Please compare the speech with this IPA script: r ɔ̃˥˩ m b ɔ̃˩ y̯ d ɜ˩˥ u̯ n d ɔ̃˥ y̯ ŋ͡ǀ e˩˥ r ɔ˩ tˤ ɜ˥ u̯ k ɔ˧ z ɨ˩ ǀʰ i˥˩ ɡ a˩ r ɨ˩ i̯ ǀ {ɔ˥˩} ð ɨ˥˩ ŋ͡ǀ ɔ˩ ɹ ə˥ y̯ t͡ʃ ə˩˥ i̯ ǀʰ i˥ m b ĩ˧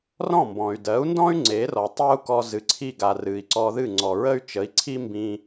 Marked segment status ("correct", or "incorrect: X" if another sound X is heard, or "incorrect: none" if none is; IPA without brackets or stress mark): incorrect: ɔ˧